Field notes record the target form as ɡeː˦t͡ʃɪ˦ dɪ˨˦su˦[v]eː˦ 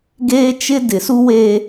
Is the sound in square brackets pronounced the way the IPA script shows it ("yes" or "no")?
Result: no